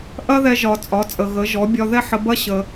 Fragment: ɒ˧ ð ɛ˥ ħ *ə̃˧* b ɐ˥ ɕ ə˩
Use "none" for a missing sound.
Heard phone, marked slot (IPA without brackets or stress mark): ə˧